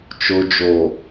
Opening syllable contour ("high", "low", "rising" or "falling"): low